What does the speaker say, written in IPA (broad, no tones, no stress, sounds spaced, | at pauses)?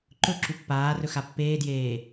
ǃ ɵ ǁ u pː aː r ɵ x a pː eː d j eː